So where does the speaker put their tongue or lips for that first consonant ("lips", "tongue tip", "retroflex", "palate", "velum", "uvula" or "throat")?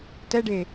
tongue tip